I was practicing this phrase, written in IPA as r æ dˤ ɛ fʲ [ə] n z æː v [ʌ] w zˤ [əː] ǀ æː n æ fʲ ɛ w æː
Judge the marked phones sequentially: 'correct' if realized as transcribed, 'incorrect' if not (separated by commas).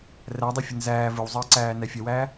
correct, incorrect, correct